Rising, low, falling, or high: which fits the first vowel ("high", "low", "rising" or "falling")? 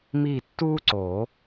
falling